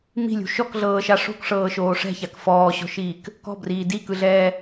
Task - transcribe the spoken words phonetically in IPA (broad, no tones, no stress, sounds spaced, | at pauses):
m i̤ lʲ ṳ ʃ ɔ k ɮ ɤː ʃ a ʂ o̤ k ʂ ɤː ʃ oː ʂ ɛ̤ ç a k f ɔː ɕ ɔ̤ ʃ iː k | k ɔ̤ b r iː d i k ɯ ɮ ɛː